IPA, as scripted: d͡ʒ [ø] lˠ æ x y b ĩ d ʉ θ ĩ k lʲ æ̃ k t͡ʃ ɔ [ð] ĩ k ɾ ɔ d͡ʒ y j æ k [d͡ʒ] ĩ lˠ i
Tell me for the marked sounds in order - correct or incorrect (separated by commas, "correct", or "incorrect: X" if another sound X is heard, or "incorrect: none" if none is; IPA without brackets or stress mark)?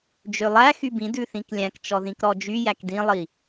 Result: correct, correct, incorrect: d